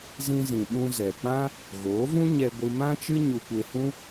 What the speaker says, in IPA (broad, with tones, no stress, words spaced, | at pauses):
zĩ˧zĩ˨ ɓũ˧zɛ˨k͡pã˦ | ɣoː˨˦vũ˦ ɲɛ˧ɡʷɨ˧ mã˦t͡ʃɨ˦ ɲu˧kʷe˧hũ˦